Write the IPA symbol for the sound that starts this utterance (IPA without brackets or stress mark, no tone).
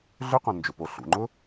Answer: ɮ